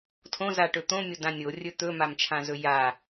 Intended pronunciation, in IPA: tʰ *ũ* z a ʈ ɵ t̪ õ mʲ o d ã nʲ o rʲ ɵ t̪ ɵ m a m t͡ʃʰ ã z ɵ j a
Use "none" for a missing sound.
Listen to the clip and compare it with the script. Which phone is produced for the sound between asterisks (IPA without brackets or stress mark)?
õ